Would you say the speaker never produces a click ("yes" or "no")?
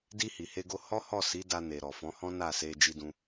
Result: yes